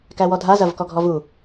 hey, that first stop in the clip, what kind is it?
plain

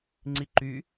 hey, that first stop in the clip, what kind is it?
click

